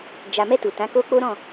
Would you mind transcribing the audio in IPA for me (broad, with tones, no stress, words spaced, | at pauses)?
d͡ʒa˨mɛ˧ tu˨tã˨˦ko˦ k͡po˦ ɾɔ̃˦˨